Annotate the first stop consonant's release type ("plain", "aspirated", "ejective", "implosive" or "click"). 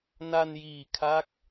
aspirated